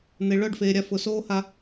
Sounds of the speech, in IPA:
n̪ e˨ ɭ œ˦˨ ɖ f eː˨ ɾʲ a˧ f ʊ˨ s oː˦ h a˧

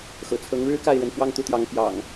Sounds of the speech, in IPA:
x ɤ̰˨˩ t͡sʰ ɤ˨˦ ŋ ɻ ɻ̩˦ k a˥˨ ɪ̯ ɻ ə˨˦ n f w ɑ˦ ŋ t̪ u˨˦ t̪ j ɑ˨˦ ŋ p j ɑ̰˨˩ ŋ

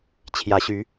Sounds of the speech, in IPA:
t͡ɕʰ j ä˨˦ ɕ y˨˦

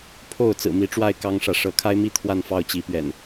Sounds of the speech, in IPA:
pʰ o˥˨ ʊ̯ t͡s ɹ̩˨˩ m i˨˦ ʈ͡ʂ w a˥˨ ɪ̯ k ɑ˦ ŋ ʂ ä˨ ʂ ɤ˨˦ kʰ a˦ ɪ̯ m i˥˨ t̪ʰ w a˥˨ n f ɑ˥˨ ʊ̯ t͡ɕ i˨˦ p ɥ ɛ̰˨˩ n

